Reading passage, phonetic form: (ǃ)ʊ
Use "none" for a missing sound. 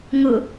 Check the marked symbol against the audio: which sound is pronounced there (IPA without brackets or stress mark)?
ŋ